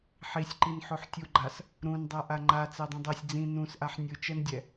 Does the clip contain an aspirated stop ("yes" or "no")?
no